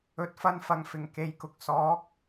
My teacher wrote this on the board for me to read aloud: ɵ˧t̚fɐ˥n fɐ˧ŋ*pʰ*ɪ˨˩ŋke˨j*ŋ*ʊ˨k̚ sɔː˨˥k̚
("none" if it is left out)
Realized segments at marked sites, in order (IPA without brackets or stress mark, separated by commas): f, k